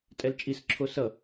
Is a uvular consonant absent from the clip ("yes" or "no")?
yes